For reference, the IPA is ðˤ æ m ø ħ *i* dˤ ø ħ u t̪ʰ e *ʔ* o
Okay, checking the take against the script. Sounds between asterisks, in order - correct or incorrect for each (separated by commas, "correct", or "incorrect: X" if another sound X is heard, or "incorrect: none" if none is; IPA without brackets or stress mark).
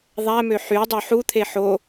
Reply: incorrect: y, incorrect: ħ